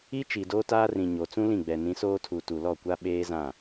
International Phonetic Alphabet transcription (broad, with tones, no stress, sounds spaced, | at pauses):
i˦ t͡ʃ i˨ d oː˦ t aː˦ r ĩ˨ ɲ o˨ t͡s ũ˦ l ĩ˦˨ ɡ͡b ɛ˨ n ĩ˨˦ s oː˦ tʰ u˨ t u˨ l ɔ˦˨ kʷ a˦ ɓ eː˦ z ã˦˨